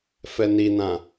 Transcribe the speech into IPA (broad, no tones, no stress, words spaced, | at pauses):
fɛninã